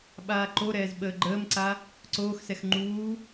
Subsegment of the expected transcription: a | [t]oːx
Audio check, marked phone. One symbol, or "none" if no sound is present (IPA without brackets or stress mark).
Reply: ǀ